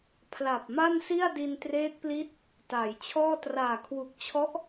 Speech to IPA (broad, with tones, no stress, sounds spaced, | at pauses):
pʰ l a˨˩ p̚ m a˥˩ n s i˥˩ a̯ d i˧ n t r eː˦˥ t̚ p l i˦˥ t̚ | t aː˩˦ j t͡ɕʰ ɔː˥˩ t r aː˨˩ kʰ w u˨˩ k̚ t͡ɕʰ ɔ˦˥ ʔ